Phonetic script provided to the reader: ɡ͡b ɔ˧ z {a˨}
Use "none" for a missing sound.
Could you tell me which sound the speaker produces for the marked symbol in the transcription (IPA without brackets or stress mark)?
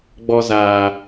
aː˨